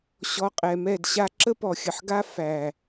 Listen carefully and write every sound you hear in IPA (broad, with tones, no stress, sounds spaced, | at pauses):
ɕ ɔ˧ qʼ ɛ˨ m ɛ˦˨ d ɕ a˦ ǁ ə˦ p ɔ˨ xʲ ə˨ ħ ɡ a˦ f æ˨